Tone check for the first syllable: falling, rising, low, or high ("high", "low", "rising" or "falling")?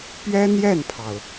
high